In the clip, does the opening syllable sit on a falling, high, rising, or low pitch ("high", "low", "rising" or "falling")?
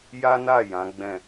high